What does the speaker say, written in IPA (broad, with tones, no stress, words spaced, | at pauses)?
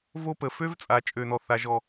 vo˦pə˨ fø˦vt͡sʼa˨ t͡ʃʼø˦˨nɔ˦θa˦ʒɔ˦˨